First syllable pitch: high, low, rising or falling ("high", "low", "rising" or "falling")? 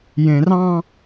low